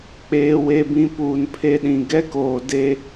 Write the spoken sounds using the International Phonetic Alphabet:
k͡p eː˨ w e˨ b ĩ˨ p uː˨ n pʰ e˦˨ ɗ ĩ˨ ɡ ɛ˦ k oː˨ d e˦

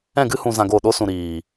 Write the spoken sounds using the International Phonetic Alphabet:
ɛ̃˦˨ ɡ ɨ˦ h ũ˧ z ã˧ ɡ o˦˨ ɗ o˦ s ũ˨ ɾ iː˨

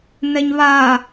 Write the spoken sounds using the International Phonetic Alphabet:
n̪ ɛ ɲ β a

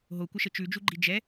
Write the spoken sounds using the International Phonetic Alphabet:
ɦ o kʷ ə ʃ ə t͡ʃ ʉ d͡ʒ u ɡ͡ǃ i d͡ʒ ɛ

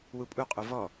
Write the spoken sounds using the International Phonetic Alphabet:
w u pʼ u qʼ u v ɔ

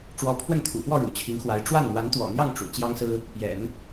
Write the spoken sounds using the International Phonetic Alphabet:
ʈ͡ʂ w ɔ˧˥ pʰ w ə˥˩ n t̪ʰ ṵ˨˩ f w ɔ˥˩ ɻ ṵ˨˩ t͡ɕʰ i˧˥ ŋ x w a˧˥ ɪ̯ ʈ͡ʂ w a˥˩ n n̪ w a˧˥ n t̪ w ɔ̰˨˩ n̪ j ɑ˥˩ ŋ ʈ͡ʂ ṵ˨˩ t͡ɕ j ɑ˥ ŋ s ɹ̩˥ | p j ɛ̰˨˩˦ n

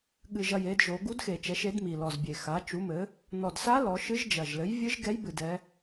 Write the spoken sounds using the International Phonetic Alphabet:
ɠ ɨ˨˩ ʒ ɐ˨˩ j e˩˧ d ʒ o˩˧ ɡ u˧˥ d x e˨˩ t͡ʃ ɛ˩˥ ʃ e˩˥ d m i˨˩ l ɔ˨˩ z bʲ e˨˩ x a˩˥ t͡ʃ u˩˥ m ɘ˩˥ | n ɔ˨˩ d s a˧˥ l ɔ˩˧ ʃ ɨ˧˥ ʒ d͡ʒ ɐ˨˩ ʒ l ɘ˩˥ j vʲ ɨ˧˥ ʒ ɡ ɛ˧˥ j b ɨ˨˩ d ɛ˩˧

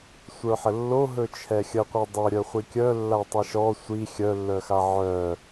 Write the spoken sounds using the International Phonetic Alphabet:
sʷ ə˞ ħ ə lː o ɦ ɵ t͡ʃʰ ɛ xʲ ə qʷ ɛ dˤ ɵ ɾʲ œ χʷ i kʲ œ lː a tˤ i ʃ ɔ sʷ i xʲ œ lː œ x a ʕ œ

